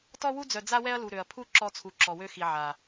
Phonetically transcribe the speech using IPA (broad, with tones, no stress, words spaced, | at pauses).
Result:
tɔ˦wu˦d͡zœ˨ d͡za˦wɛ˦ɐ̯ lu˨ ɾø˨ɐ̯ pʰu˦˨ ǁɔ˦t͡sʰu˨ ǁɔ˨wø˦xi˨ ʕa˨